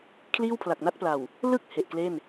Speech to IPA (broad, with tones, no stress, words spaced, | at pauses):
kʰliː˥˩wpʰla˨˩k̚na˥˩t̚pla˨˩w | lɯ˥˩k̚ he˨˩ʔkle˥˩n